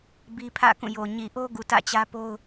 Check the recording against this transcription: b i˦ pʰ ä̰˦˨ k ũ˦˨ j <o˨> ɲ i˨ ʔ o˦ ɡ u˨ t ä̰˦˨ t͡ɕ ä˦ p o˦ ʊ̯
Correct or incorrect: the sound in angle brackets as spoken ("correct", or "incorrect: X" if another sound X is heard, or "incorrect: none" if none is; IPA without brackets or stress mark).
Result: correct